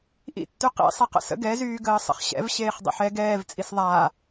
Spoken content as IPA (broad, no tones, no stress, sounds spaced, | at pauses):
ʔ ḭ tː y q ḭ sˤ i q ə̰ s ə̰ ɡ ɛ z yː ɡ əː sˤ ə̰ χ ɕ ɛ̰ v ɕ eː χ dˤ ə̰ ħ ɛ ɡ ɛː v t͡sʼ i s ðˤ aː